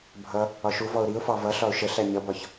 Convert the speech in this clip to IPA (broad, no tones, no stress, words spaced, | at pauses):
bʱʌ | ɒʃuvɔʊ̯ ɾiʊ̯fɑ vʌɬɒʊ̯ ʃə ɬæɲʌbɒç